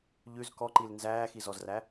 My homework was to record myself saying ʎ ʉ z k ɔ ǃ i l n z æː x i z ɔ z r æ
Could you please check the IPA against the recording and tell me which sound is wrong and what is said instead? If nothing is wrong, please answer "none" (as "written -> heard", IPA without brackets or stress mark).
none